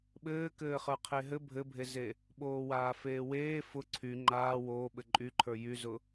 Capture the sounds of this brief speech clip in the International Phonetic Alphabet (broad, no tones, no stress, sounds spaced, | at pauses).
ɓ ɘː k ɘː χ ə˞ qʰ e ɦ ɘ bʱ ɘ bʱ e z e | ɓ oː w aː f eː w eː f ʊ ǀʰ y ŋ͡ǃ aː w oː ɓ ɘ ǃʼ y ǃʰ ə˞ j y z ʊ